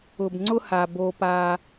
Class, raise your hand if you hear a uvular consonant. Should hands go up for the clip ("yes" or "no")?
no